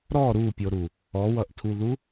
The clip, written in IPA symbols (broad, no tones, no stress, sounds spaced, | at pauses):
ɾ ɔ ɾ u pʲ o ɾ u | ɔ w ʌ ʔ tʰ u ð u